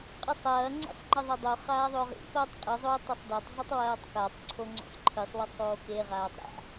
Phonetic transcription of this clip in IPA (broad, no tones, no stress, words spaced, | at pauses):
qʼɨsˤɐːŋ͡ǀḛsˤ ŋ͡ǃɐðˤedˤoχaː ðˤoʁḭpɐːtˤ qʼɨzˤoːtˤosˤ datˤzˤitˤ wɐːtˤkatˤǀʰo ŋ͡ǀo̰sˤǃʰɨsˤwɐsˤoː keʁaːtˤ ɾa̰